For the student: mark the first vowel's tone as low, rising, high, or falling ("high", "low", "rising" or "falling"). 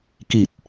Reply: low